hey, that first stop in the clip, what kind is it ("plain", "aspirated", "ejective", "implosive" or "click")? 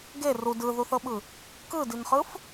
plain